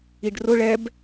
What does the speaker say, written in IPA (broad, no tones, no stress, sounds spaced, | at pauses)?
i ɖ r ʊ ɭ ɛ b